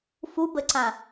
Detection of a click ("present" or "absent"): present